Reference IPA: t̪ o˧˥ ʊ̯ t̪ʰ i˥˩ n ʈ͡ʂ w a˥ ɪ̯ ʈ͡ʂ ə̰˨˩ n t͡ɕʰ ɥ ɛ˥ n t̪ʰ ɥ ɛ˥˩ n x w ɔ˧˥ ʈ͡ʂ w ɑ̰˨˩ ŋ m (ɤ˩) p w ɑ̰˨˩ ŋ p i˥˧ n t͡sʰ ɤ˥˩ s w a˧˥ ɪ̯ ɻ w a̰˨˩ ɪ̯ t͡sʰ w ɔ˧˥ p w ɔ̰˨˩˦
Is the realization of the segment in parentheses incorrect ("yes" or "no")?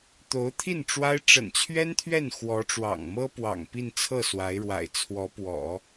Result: yes